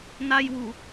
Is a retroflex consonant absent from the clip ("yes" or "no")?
yes